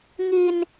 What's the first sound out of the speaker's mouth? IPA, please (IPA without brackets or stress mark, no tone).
ŋ